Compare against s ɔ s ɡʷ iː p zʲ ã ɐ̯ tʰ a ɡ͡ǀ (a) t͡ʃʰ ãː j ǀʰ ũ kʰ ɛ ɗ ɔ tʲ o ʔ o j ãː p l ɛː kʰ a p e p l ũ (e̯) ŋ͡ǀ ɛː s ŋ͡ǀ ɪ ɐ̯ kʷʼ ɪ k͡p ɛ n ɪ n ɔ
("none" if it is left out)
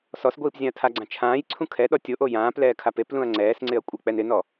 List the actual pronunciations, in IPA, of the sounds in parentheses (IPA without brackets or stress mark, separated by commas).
ã, ɐ̯